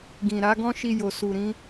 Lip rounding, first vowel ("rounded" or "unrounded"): unrounded